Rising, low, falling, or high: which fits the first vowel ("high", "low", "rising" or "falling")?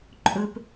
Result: high